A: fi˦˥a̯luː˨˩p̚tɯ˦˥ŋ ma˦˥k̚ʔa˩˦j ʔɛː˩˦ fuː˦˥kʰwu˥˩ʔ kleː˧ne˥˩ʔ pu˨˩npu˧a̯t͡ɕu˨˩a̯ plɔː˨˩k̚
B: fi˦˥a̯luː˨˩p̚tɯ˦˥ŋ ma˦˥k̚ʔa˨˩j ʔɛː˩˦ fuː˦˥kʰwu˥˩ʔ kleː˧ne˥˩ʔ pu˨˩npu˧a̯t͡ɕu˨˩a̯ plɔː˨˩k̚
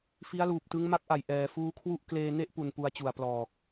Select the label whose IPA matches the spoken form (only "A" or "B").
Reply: B